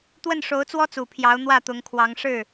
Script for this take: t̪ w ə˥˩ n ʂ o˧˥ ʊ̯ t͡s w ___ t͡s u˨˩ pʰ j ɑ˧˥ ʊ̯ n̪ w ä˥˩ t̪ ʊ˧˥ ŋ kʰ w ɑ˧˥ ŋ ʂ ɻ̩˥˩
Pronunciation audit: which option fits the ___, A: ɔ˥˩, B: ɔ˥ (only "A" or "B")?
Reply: B